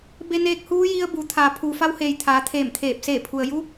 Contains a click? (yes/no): no